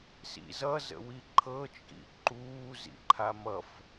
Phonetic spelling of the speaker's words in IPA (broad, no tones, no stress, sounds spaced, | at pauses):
s ḭ z ʌ z ə̰ w i ǃʰ ɤ t͡ʃʼ ḭ ǃ uː z ḭ ǃʰ a m ʌ f